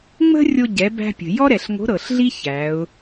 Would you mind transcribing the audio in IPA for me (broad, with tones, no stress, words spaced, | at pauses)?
ŋ͡mə̤˥rʲo˧ ɟɛ˩˧bæ̤˧pʲə̤˩ jɔ˥ɾɛ˩ɬŋo̤˧˥ ɾɤ˩ɬɮi˥ çæ˩˧ʊ̯